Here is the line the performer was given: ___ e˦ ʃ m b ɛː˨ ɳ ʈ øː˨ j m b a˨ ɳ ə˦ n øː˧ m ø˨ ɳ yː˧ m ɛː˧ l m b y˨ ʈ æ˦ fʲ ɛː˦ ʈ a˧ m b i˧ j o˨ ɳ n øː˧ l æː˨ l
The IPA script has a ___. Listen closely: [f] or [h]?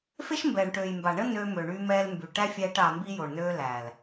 f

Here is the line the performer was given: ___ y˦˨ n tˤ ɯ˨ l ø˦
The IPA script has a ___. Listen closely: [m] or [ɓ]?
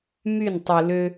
m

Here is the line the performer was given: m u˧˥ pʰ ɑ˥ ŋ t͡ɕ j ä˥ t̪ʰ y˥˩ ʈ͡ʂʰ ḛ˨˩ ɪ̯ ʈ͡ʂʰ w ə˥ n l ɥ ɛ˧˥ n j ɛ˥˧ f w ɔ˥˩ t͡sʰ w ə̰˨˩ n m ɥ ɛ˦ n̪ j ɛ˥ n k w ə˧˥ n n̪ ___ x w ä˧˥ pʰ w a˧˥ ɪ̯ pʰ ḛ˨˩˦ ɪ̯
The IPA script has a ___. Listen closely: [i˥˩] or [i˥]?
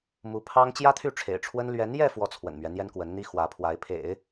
i˥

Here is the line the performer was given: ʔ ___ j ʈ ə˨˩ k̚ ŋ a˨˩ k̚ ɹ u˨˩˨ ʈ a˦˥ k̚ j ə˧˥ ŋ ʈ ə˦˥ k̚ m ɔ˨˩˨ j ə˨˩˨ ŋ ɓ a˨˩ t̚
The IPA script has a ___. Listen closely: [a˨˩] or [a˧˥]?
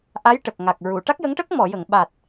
a˧˥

